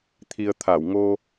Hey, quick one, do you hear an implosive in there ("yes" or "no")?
no